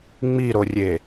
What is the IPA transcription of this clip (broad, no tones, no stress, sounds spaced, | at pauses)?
ŋ͡m i ɾ o rʲ e